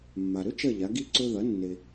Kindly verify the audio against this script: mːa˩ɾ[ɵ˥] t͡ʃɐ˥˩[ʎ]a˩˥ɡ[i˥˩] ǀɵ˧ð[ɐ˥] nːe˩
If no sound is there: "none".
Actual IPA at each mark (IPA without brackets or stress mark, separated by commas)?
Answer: ɵ˥, ʎ, i˥˩, ɐ˩˥